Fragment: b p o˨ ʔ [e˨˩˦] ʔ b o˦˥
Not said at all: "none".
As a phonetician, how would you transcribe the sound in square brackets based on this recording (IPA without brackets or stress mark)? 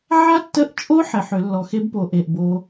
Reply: e˨